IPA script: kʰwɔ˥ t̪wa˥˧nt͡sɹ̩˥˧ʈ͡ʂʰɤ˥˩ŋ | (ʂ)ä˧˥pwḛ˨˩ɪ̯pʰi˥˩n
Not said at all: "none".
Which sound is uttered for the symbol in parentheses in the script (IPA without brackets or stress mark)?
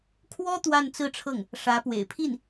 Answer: ʂ